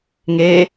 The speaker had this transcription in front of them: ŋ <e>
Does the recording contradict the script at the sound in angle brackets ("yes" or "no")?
no